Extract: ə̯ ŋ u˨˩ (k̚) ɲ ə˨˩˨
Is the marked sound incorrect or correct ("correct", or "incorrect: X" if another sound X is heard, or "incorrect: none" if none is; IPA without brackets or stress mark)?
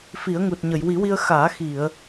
incorrect: t̚